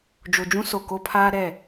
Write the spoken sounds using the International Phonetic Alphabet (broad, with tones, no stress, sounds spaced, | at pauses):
d͡ʒ o˨ d͡ʒ ũ˦ s o˨ k o˦ pʰ aː˦ ɾ ɛ˦˨